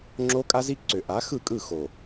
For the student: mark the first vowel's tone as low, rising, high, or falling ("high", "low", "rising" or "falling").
high